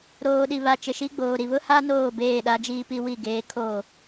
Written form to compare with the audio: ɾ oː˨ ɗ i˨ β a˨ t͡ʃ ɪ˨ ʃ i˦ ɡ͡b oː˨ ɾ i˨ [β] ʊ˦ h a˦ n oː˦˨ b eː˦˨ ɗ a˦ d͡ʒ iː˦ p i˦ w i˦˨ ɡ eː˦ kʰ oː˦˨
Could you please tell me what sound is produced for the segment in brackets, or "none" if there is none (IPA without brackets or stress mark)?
β